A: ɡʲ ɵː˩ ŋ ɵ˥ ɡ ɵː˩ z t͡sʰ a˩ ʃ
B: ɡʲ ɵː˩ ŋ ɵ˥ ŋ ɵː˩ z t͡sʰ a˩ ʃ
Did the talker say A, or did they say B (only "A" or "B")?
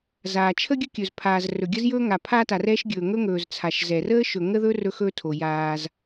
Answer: B